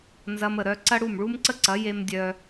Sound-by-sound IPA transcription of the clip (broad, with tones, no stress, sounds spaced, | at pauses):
n z ɐ˧ m ə˨ ɾ œ˧ ǀ ɐ˦ ɽ u˦˨ m ɭ u˦ m ǀ ə˦ ǀ ɐ˨˦ j e˦ m dʲ œ˦